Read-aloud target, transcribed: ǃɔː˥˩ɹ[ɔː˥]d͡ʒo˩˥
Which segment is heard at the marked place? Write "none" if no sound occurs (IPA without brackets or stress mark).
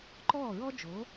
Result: ɔ˥